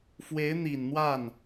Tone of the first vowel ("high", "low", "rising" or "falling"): rising